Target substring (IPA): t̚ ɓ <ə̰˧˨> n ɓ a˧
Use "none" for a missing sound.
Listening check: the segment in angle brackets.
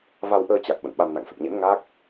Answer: ə̰˧˨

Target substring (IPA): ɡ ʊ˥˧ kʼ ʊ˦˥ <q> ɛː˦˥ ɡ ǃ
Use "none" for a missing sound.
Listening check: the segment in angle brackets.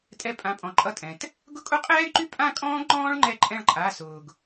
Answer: qʼ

